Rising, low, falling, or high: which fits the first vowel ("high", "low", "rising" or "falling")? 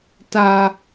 low